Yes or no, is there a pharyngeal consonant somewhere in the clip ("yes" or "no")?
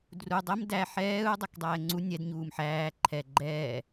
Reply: yes